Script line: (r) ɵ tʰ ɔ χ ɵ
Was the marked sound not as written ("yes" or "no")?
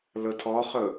yes